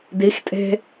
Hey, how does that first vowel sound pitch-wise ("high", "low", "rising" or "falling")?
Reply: rising